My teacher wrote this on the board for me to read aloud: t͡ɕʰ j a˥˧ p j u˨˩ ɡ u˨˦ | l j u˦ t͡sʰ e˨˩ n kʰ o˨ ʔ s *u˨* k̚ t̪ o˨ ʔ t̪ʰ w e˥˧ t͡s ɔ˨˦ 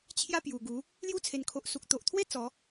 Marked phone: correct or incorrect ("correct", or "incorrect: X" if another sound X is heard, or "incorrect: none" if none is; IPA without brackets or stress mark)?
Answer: correct